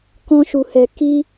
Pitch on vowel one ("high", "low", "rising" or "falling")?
high